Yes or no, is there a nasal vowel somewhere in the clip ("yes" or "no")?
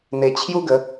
no